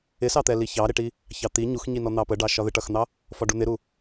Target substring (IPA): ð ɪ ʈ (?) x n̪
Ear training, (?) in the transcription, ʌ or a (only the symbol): ʌ